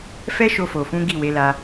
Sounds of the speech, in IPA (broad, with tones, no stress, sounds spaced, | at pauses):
f ɛ˦ ʃ o˧ f o˨ f ũ˨˦ ɡ i˦˨ w e˨˦ l a˧